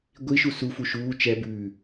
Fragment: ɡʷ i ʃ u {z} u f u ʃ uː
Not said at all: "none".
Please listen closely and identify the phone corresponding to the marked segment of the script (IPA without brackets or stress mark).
s